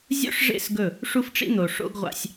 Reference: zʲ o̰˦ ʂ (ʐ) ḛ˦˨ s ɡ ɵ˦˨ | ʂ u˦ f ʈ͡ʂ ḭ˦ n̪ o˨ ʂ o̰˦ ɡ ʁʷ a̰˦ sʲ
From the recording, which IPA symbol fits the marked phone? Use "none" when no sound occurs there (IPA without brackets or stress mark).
ʐ